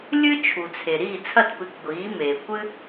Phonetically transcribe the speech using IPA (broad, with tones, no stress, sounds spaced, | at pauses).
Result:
lʲ ɨ˥ t͡ʃʰ u˩ t͡sʰ e˩ ɾ iː˥˩ t͡sʰ ɐ˥˩ t p ɨ˩˥ k ɡʷ iː˩˥ m eː˩ kʷ ɨ˥